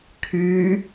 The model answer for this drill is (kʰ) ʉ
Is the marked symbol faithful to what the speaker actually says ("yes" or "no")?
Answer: yes